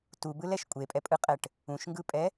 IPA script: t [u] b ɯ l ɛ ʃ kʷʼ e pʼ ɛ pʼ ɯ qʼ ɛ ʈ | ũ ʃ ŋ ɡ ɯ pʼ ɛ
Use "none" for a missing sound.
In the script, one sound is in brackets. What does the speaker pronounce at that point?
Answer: u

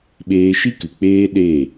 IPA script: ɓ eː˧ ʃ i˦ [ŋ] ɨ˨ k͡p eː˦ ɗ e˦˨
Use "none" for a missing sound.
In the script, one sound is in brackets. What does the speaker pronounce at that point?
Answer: k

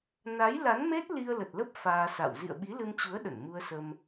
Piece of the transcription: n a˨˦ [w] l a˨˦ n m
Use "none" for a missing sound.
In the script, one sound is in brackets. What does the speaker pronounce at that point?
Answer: j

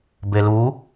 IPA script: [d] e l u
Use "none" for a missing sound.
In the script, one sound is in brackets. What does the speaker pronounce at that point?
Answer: b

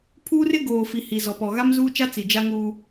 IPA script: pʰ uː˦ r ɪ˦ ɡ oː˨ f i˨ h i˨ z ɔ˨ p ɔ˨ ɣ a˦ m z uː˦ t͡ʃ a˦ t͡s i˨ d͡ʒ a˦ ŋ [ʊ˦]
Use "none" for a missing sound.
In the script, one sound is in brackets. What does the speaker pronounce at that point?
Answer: u˦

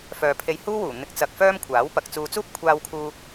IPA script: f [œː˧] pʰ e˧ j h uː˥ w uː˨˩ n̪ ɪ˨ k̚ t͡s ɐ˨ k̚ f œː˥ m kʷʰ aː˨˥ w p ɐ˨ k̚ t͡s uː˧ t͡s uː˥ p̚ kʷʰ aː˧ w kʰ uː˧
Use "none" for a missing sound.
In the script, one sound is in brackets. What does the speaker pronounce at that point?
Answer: œː˨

